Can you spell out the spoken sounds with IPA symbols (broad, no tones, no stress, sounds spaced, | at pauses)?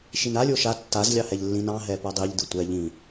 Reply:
ʃ i n a lʲ o ʃ a tː a z lʲ ɑ h ɛ ʎ lː ĩ n ɑ̃ ɦ ɛ p ʌ dˤ i ʎ d ɯ tʷ ɛ ʎ ĩ